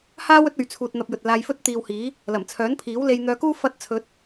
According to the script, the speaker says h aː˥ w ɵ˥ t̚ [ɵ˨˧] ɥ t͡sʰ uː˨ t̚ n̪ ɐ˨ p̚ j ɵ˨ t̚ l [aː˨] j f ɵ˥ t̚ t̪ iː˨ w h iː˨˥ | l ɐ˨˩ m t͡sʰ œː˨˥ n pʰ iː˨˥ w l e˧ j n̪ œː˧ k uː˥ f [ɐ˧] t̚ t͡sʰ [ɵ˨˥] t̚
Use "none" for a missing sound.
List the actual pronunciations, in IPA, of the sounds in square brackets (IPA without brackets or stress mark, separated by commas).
ɵ˨˧, aː˧, ɐ˧, ɵ˨˥